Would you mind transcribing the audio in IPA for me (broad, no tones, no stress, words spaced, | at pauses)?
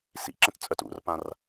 sḭǁə̃tt͡sʼœt ṵrpãr